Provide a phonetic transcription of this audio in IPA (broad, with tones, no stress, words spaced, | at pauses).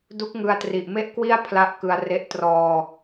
du˦˥k̚ ŋɯ˧a̯tri˨˩ʔme˥˩ʔkwi˥˩a̯ pʰla˦˥ʔkɯ˧a̯re˦˥ʔ trɔː˧